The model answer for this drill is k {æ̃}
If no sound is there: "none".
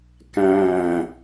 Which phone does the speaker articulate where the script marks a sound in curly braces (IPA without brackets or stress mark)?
æ̃